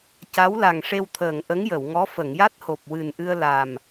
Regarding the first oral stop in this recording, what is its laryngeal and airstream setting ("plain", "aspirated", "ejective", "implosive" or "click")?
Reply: plain